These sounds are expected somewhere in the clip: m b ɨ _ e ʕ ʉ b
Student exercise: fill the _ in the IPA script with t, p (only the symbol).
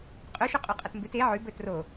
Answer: t